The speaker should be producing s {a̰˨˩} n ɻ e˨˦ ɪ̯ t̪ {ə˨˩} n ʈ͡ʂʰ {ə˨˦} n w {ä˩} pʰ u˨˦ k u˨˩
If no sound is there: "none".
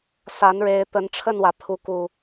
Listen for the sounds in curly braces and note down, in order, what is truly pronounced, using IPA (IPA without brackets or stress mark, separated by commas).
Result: a˨˦, ə˨˦, ə˥˨, ä˩